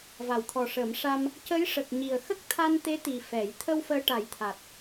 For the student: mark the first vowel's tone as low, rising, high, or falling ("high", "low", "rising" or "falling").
low